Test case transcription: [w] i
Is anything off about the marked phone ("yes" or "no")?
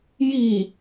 yes